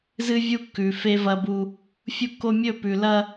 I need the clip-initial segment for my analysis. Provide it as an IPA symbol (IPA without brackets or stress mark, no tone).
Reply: z